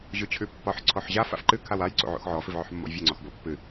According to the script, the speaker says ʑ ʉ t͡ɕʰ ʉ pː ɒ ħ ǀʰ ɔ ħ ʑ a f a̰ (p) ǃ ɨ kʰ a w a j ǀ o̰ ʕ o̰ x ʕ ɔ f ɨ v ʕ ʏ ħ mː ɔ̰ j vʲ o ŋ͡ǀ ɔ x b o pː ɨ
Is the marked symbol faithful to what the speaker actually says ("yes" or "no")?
no